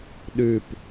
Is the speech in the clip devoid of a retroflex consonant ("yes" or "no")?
yes